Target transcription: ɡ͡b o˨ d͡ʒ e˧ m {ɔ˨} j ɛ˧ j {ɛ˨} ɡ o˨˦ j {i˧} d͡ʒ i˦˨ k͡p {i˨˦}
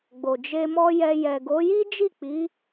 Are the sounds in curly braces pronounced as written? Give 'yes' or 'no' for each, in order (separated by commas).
no, yes, no, yes